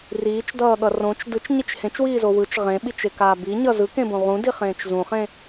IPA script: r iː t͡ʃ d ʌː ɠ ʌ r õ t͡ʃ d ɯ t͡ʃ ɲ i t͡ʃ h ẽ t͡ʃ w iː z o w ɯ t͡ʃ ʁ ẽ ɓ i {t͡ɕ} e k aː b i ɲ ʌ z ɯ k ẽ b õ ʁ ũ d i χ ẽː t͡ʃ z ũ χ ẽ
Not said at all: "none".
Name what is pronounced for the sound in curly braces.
t͡ʃ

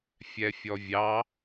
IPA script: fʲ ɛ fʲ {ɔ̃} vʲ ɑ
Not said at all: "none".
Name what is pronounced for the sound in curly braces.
ɔ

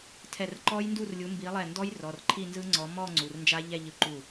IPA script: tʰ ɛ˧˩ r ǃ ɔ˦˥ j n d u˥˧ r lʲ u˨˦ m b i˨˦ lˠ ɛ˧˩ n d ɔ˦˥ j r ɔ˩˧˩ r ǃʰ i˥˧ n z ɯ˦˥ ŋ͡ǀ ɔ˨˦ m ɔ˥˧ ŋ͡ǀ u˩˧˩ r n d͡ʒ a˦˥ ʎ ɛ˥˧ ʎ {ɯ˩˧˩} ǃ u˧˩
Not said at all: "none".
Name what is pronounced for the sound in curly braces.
ɯ˧˩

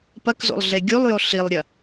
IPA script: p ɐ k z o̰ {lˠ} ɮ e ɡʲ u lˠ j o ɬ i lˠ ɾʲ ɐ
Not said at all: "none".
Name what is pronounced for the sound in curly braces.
lˠ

